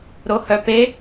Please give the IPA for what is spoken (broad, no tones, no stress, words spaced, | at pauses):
ɾohœpe